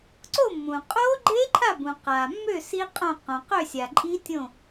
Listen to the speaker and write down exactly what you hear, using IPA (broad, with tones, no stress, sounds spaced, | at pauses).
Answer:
ǀ o˦˨ mː ũ˩ qʼ o˦˥ ɡ͡ǃ e˦˥ ǃʰ a˦˨ b ũ˩ q a˩ mː ø˦˨ s i˦˥ qʼ õ˦˨ q õ˩ q ø˦˨ sʲ a˩ ǃʼ i˦˥ tʲ õ˦˨